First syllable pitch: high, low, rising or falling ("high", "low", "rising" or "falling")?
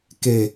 low